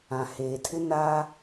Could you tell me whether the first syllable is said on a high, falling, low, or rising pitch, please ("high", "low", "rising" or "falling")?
low